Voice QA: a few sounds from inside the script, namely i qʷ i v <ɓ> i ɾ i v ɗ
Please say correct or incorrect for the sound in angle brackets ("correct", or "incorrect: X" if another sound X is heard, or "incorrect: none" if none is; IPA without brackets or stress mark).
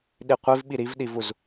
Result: correct